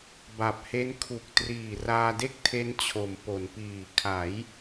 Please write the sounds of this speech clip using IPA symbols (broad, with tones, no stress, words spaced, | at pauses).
ba˨˩p̚he˦˥n kʰu˨˩k̚ triː˨˩raː˧de˥˩k̚ tʰe˦˥nt͡ɕʰo˩˦m po˩˦npiː˨˩ kʰa˩˦j